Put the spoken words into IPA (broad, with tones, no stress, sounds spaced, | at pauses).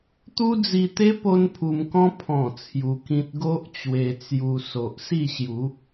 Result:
t̪ u˦ d͡z i˧ t̪ e˦ p o˦ n pʰ u˧ m k ɔ̃˦ pʰ ɔ̃˨˩ t͡sʰ j u˧ k ĩ˦ t̚ ɡ o˦ ʔ t͡ɕ w e˧ t͡s j u˧ s o˨ ʔ s i˥˧ ɕ j u˨˦